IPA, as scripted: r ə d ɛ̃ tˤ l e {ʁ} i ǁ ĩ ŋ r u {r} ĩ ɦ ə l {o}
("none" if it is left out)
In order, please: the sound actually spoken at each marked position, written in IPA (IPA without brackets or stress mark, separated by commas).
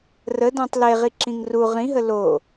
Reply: ʁ, ʁ, o